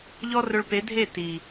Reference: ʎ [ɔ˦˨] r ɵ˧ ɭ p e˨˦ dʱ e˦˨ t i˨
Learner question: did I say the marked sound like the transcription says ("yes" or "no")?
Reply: no